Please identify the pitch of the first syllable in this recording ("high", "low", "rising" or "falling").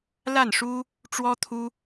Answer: falling